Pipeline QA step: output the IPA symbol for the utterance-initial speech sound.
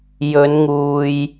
j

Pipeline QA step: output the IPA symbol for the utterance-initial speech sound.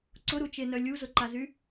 ǀ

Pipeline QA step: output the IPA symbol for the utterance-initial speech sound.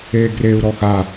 eː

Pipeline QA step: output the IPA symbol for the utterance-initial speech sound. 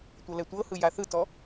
tʷ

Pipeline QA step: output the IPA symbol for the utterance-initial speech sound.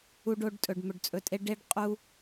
u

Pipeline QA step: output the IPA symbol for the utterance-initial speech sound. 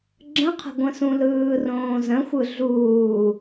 ɡ͡ǁ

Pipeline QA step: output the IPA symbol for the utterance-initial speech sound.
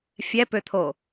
fʲ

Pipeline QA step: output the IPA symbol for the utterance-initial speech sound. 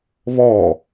β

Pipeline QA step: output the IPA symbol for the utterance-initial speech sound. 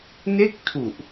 n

